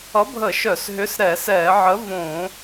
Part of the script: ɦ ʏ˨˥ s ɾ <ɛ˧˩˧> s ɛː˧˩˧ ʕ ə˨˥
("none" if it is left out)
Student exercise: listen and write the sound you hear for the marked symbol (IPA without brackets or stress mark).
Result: ɛ˧˩˧